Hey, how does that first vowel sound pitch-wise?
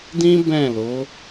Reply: high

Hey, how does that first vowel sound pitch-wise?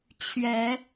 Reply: rising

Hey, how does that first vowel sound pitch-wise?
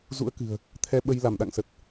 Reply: rising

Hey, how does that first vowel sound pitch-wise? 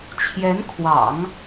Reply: rising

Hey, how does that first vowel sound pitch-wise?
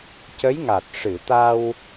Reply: rising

